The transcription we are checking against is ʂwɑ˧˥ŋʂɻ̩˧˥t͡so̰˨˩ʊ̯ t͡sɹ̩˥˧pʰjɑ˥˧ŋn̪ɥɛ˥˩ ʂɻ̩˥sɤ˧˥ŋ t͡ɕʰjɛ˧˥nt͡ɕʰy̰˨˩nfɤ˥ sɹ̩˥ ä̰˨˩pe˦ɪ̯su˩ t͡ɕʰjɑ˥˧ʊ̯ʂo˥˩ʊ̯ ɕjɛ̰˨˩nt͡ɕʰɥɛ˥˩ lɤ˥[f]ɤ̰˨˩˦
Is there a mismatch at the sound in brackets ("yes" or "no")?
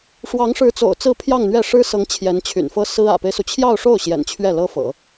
no